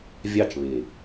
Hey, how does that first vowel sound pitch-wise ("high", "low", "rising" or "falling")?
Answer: falling